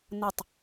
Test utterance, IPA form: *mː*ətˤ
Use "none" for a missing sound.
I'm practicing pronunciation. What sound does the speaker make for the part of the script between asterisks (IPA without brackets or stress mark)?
n